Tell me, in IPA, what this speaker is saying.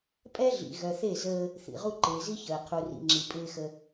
pʼ ɛ˦ ɮ ḭ˨ ɣ œ˨ θ e˦˨ z əː˦ | θ ḭ˨ ʁ u˦ ǃ ɪː˨ z i˦ ç əː˨ qʰ u˨ r ḭ˨ ŋ͡ǁ i˨ pʼ ɪː˦ x ə˦

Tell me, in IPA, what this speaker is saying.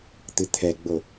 t̪ ɨ t̪ʰ ɛ ɡ͡b o

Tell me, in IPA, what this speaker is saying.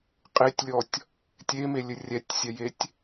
qʼ e tʲ lʲ ɔ tʲ | tʲ e m e lʲ ɘ rʲ ɛ tʲ sʲ ɛ j e tʲ

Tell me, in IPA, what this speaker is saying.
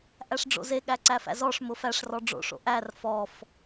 ʔ æ ʂ ɖ͡ʐ o̰ z e ɠ æ ǀ æ f æ̰ z ɔ ʂ m ʊ f æ ʂ r ɔ ɖ͡ʐ o̰ ʂ o̰ ʔ æ r f ɔ f

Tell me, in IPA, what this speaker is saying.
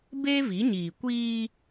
b eː˦ v i˨˦ ɲ iː˨ kʷ iː˦

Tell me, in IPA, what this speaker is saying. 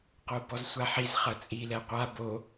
q o b ɔ z sʷ a ħ i z χ ɐ t͡sʼ i l ɛ qʷ a b o

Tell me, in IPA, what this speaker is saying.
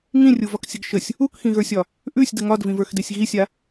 ŋ ĩ rʲ u v ɒ k sʲ ə ɡ ʃ ə sʲ | u k x ĩ ɣ ə˞ sʲ ɒ | ʔ ʉ sʲ d ə ŋ ɒ d v ĩ v ə˞ x d e sʲ ɣ i sʲ a

